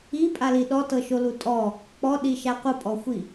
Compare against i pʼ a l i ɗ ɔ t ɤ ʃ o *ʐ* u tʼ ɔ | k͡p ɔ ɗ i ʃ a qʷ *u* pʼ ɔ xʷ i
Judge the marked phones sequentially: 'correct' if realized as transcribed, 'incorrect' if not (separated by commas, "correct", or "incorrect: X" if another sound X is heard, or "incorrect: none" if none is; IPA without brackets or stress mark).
incorrect: l, incorrect: ɯ